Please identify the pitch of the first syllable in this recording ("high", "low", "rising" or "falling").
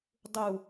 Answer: low